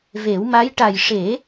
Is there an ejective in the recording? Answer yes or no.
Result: no